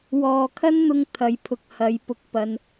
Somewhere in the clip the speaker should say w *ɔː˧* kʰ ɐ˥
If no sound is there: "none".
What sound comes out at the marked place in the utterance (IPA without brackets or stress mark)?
ɔː˨